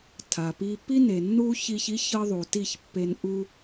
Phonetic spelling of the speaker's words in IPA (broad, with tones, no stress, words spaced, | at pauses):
tʰa˨pi˦ pi˦ne˨nːu˦çi˧ç i˦çɤ˧ ðˤu˨ti˦˨çpːe˧n ʔu˦